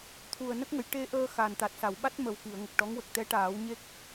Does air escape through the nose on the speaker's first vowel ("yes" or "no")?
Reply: no